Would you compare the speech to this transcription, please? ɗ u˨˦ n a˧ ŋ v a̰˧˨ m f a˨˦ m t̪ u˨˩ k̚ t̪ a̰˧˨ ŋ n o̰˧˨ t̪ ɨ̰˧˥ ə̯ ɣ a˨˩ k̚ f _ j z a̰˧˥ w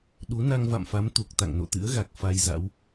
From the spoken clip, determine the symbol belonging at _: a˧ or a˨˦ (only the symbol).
a˧